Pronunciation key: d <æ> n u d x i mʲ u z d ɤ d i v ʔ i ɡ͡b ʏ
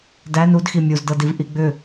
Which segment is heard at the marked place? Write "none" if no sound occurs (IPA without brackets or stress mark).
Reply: æ